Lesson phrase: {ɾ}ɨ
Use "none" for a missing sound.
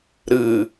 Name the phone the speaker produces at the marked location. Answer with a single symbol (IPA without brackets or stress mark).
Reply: ɾ